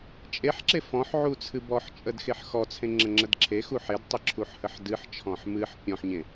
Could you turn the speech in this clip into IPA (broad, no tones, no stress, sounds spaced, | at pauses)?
t͡ʃʼ e ħ ǁ e f ɔ̃ ħ ʕ u t͡sʰ ɨ b ɔ ħ t͡ʃʼ ə d x e ħ x ɔ t͡sʰ ẽ ŋ͡ǁ ə ŋ͡ǁ ə d ǁʰ e x u ħ e d tˤ ɨ ǁʰ u ħ h ə ħ d ɨ ħ t͡ʃʰ ɔ̃ ħ m ɨ ħ pʲ ɔ̃ ħ ɲ ẽ